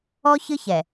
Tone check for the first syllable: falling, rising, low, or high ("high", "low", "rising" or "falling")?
high